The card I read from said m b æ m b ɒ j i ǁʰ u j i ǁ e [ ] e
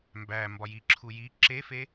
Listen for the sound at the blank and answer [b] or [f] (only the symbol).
f